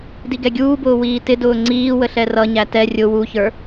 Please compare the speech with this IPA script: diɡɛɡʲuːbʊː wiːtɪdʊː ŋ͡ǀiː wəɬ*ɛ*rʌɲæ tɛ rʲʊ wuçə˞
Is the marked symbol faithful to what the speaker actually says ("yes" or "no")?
yes